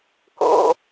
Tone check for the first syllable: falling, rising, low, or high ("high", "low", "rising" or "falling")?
low